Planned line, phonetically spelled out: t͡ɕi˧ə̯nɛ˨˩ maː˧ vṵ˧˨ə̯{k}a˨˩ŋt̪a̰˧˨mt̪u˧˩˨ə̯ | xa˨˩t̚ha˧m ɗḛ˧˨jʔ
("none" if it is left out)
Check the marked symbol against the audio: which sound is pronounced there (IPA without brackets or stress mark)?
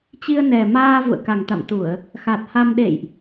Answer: k